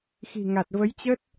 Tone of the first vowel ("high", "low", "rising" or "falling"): low